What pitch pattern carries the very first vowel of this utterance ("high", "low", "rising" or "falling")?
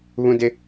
high